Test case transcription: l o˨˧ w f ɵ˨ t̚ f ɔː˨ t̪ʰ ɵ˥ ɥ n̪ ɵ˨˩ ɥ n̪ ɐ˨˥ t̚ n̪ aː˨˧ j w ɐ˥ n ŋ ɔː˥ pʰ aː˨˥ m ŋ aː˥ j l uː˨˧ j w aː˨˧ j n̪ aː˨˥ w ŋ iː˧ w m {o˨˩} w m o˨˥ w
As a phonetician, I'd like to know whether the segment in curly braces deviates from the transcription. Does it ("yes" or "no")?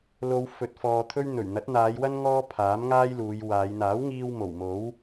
no